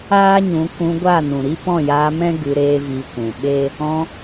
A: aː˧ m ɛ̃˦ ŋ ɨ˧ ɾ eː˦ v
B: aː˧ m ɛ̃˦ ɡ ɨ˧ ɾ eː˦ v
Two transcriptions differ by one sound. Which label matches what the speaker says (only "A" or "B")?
B